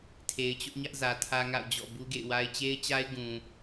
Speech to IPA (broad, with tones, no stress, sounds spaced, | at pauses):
tʰ e˨ ɪ̯ t͡ɕ ʊ˦ ʔ ɲ ä˦ ʔ z ä˨ tʰ ä˦ ŋ a̰˦˨ ʊ̯ d͡ʑ ɔ̰˦˨ b u˦ ɡ ḛ˦˨ ɪ̯ w a˦ ɪ̯ t͡ɕ e˦ ɪ̯ t͡ɕ a˦ ɪ̯ ɡ ũ˨